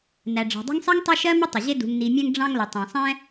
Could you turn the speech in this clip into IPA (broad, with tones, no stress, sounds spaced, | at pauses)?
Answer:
n æ˩ ɖ͡ʐ ɑ̤˩ dˤ ṳ˦ ŋ sˤ ɛ˥ ŋ tˤ ɜ˦ ʃ ɜ˥ m ə˥ tˤ ɪ˩ ʑ ɪ˦ d ṳ˨ ŋ n i˨ mʲ ɛ̃˦ ŋ ɖ͡ʐ ɑ̃˦ ŋ l ə˩ tˤ ɛ̃˩ sˤ ɛ̃˥